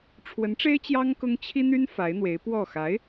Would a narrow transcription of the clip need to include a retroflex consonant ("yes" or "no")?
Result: yes